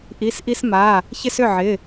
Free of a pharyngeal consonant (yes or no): no